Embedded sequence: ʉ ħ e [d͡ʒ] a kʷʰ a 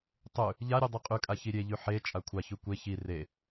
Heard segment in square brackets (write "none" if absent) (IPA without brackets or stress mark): t͡ʃʼ